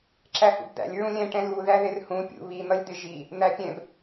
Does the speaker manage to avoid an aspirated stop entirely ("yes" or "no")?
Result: yes